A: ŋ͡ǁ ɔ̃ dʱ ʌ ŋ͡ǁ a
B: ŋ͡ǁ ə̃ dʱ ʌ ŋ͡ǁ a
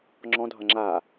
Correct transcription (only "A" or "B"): A